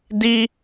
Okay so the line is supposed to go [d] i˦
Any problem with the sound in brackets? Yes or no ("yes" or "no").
no